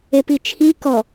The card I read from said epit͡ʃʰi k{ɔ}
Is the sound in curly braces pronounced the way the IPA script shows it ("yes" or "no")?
yes